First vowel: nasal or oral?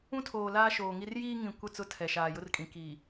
nasal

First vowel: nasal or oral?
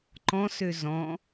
nasal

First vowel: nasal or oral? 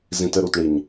nasal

